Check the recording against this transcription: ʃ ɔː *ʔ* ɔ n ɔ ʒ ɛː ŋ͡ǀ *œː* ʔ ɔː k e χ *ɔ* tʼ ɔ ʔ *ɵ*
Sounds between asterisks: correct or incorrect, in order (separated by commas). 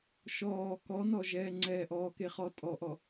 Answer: incorrect, incorrect, correct, incorrect